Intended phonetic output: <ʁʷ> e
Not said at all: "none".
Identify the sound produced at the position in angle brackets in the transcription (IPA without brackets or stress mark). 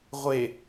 ʁʷ